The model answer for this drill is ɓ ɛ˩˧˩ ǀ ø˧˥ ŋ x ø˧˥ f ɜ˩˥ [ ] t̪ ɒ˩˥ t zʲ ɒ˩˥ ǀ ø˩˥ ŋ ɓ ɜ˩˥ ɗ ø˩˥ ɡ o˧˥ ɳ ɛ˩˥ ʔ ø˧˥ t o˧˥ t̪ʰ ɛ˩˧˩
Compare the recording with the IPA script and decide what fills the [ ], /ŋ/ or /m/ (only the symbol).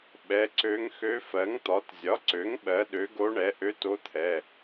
ŋ